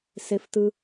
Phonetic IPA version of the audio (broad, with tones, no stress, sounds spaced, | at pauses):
s e˨ f t ɯ˨